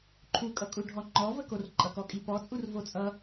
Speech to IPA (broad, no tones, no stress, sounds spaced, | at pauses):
ǃʰ u kʼ ʌ kʼ u ɖʱ ɔ ŋ͡ǃ ɔ v ə k o r ǃʼ ʌ k ɔ kʼ i p ɔ t͡sʼ u r v o t͡sʼ ʌ